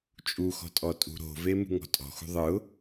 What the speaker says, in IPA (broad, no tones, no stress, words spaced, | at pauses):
t͡ʃʼuxɔ̤ tʼɔtʼṳɾo̤ve mṳŋɔ̤tʼɔ̤xṳ ðˤɯʊ̯